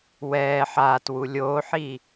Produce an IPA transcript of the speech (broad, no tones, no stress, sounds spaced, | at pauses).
w ɛː ħ aː t w u lʲ oː ħ iː